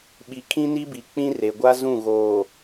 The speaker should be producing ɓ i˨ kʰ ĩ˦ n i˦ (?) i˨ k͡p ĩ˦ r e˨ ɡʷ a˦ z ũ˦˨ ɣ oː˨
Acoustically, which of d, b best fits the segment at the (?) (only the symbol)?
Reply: b